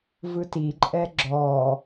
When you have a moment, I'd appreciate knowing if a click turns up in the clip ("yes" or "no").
yes